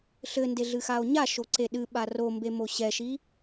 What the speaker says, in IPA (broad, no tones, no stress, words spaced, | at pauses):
ɬɘnde ɮɨxao̯ɲa ʃoǀeɗɨ ɓarombemo ɕɛʃi